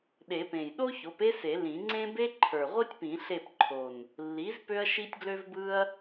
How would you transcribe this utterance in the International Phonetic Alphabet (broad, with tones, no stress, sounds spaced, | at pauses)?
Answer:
ɗ e˨˩˦ p ẽ˨˩ j ɗ o˥ ç o˩˥ p e˥ s e˨˩˦ l ĩ˨˩˦ ŋ͡ǀ ẽ˥ b e˥ ǃʰ ə˞˨˩ ʁʷ i˥ tʲ p ĩ˨˩˦ ɬ e˦˨ p ǃʰ o˨˩ n | lː i˩˥ z p ø˥ ɐ̯ ʃ i˥ tʲ ɡ l ø˥ v b ɯ˥ ɐ̯